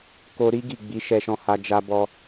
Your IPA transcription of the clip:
k o˧ ɾ i˦ ɡ i˦˨ ɡ͡b i˨˦ ʃ ɛ˧ ʃ ɔ̃˧ h a˧ d͡ʒ a˧ b ɔ˧

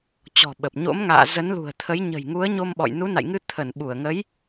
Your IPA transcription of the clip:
t͡ɕ ɔ̤˨˩ ɓ ə˨˩ p̚ ɲ o̰˧˥ m ŋ a̰ː˧˨ z ə˨˦ n l ṳ˨˩ ə̯ t̪ʰ ə˨˦ j ɲ ə̤˨˩ j ŋ u˨˦ ə̯ ɲ o˧ m ɓ ɔ̰˧˨ j n u˨˦ n a̰˧˨ j ŋ ɨ˧ t̪ʰ ə˧˩ n ɓ u˧˩ ə̯ ŋ ə˨˦ j

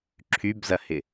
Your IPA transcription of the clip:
ǁʰ y b z ɐ h ɪ

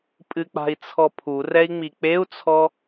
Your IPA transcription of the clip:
pʼ ɨ k͡p a̤ i̯ t͡sʰ ɔ pʰ u r ɛ i̯ ŋ͡m i k͡p e u̯ t͡sʰ ɔ

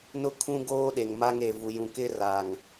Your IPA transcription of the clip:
n ʊ˦ kʰ ũ˦ ɡ oː˦ ɗ e˨ ŋ m a˦ ŋ e˨ v u˨ j ũ˨ k ɪ˦ r a˨ ŋ

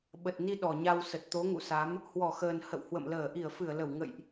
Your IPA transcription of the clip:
ɓ ə˨˩ t̚ n i˧ ɗ ɔ˨˩ ɲ a˧ w s ə˨˩ t̚ t̪ o˨˦ ŋ ṵ˧˨ s a˨˦ m | h w ɔ˧˩ x əː˨˩ n h ə̰˧˨ w h w ə̰˧˨ m l əː˧˩ ʔ i˧˩ ə̯ f ɨ˧˩ ə̯ l ə˧˩ w ŋ ə̰˧˨ j ʔ

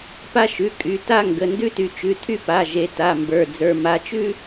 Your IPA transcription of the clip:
p a˥ ʃ ʉ˩˧˩ kʼ y˩˧˩ t a˥ ŋ ɡ ə˩˧˩ n d ʉ˥ t y˨˦ t͡ʃ ʉ˩˧˩ tʰ y˥ p a˩˧˩ ʒ e˨˦ t a˩˧˩ m b ə˞˩˧˩ d͡z ə˞˩˧˩ m a˨˦ t͡ʃ ʉ˥

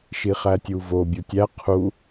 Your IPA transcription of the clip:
ʃ i χ æ tʲ u v o bʲ u tʲ æ qʰ u

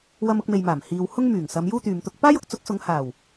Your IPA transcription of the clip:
w ɐ˧ m ʊ˧ k̚ m e˨ j m aː˨˩ m h iː˨ w h ʊ˥ ŋ m yː˨˩ ŋ s ɐ˨˧ m j uː˥ t̪ yː˨ m t̪ ʊ˧ k̚ p aː˥ j ʊ˨˥ k̚ t͡s ʊ˨˥ k̚ s ʊ˨˧ ŋ h aː˨˩ w

